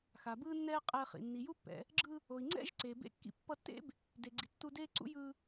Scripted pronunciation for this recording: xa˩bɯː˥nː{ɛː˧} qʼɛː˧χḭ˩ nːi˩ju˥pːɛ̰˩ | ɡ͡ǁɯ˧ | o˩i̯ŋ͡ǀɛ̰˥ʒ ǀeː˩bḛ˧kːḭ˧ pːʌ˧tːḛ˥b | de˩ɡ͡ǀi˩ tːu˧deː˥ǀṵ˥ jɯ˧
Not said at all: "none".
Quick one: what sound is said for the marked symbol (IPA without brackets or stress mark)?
ɛː˥